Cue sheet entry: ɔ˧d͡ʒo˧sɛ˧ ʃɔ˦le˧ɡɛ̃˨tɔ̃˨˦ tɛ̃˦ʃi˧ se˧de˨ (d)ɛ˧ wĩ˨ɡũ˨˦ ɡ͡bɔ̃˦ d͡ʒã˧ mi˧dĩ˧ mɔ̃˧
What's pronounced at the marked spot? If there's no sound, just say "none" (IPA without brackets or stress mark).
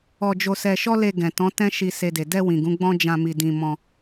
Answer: d